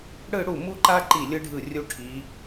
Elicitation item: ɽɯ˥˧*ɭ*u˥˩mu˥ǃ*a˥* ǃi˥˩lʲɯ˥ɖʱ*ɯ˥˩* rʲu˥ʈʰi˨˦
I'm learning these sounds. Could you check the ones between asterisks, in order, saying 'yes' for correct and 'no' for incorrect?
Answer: no, yes, yes

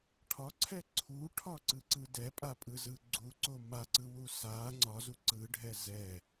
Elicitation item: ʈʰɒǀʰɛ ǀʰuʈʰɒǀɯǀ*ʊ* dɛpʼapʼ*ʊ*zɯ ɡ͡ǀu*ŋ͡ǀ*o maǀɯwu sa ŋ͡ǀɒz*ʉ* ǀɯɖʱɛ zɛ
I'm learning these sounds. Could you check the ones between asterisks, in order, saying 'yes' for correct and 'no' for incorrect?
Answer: no, no, no, no

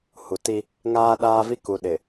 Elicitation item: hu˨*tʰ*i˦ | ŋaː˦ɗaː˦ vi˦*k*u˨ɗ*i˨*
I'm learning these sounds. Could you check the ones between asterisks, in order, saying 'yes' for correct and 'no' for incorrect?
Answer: no, yes, no

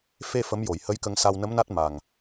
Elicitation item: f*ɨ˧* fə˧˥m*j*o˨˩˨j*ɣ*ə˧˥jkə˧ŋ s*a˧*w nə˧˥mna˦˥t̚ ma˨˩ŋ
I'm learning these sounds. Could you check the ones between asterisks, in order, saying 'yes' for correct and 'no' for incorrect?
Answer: no, yes, no, yes

